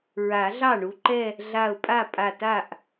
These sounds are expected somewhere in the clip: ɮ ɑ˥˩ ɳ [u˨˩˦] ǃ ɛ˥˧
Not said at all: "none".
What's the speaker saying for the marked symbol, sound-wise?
u˧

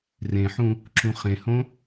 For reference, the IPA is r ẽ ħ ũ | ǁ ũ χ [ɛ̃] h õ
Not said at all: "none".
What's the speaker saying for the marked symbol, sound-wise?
ẽ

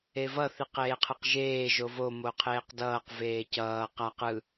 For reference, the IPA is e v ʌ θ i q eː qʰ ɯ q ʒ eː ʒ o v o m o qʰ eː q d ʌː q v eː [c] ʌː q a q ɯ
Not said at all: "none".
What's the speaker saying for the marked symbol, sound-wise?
c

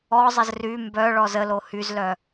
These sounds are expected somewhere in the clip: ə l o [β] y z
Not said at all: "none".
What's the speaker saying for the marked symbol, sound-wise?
h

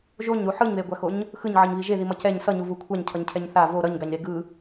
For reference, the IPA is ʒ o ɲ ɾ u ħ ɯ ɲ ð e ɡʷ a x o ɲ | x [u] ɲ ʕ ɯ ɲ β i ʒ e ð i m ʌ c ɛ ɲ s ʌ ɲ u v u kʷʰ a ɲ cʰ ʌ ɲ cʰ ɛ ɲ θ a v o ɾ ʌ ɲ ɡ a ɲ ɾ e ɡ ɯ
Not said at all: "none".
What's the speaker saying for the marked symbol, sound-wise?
ɯ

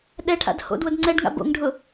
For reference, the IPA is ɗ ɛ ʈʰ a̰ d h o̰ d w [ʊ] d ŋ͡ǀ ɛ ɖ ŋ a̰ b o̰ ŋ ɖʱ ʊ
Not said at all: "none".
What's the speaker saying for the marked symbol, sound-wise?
ʊ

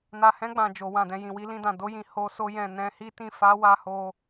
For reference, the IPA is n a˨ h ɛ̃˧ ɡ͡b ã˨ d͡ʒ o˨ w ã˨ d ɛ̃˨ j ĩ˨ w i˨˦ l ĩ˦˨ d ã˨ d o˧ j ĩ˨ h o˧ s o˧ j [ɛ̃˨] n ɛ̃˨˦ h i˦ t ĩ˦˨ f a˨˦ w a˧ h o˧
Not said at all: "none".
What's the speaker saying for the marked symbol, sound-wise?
ɛ̃˨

